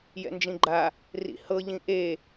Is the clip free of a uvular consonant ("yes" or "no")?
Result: yes